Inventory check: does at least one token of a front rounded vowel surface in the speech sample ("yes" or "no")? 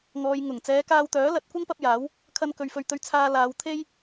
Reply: yes